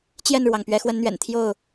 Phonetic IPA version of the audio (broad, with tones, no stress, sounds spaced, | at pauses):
t͡ɕ j ɛ˥˨ n ɻ w ɑ˩ ŋ p ɥ ɛ˨˦ x w ə˨˦ n n̪ ɥ ɛ̰˨˩ n t̪ʰ j o˥˨ ʊ̯